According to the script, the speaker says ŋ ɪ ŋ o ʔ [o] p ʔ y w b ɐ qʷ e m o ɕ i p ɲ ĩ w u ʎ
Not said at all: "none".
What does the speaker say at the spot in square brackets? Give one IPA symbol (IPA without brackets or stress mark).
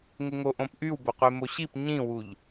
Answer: õ